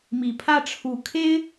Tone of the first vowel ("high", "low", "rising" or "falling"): low